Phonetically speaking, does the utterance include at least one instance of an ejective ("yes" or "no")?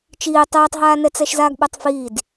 no